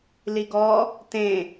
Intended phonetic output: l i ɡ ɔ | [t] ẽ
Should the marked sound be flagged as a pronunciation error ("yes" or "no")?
no